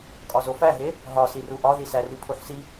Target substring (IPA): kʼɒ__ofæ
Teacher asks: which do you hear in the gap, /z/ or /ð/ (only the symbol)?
z